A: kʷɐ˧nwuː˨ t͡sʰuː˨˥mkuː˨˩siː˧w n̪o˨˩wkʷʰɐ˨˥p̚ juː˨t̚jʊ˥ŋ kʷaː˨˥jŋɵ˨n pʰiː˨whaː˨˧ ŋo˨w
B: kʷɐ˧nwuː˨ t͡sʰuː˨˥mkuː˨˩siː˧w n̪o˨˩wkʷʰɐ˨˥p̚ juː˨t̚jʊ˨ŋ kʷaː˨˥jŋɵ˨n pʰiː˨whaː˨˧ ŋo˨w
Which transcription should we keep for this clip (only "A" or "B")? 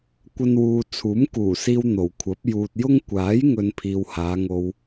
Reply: A